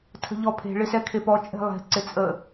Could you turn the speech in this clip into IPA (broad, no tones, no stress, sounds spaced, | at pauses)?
tʰ ə̤ ʎ ɔ pʰ e̤ ɭ ɪ s ɛ kʰ e p ɔ t͡ʃʼ e̤ lˠ e̤ ǀ ɪ t͡sʼ ə